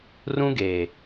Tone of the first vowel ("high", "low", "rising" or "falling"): high